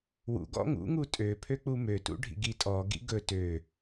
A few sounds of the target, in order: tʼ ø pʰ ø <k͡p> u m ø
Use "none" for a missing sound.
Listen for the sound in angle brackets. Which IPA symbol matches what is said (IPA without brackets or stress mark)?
k͡p